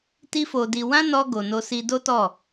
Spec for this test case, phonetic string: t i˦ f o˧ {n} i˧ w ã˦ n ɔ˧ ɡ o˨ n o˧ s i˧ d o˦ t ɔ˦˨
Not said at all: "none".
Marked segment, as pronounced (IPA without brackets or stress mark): d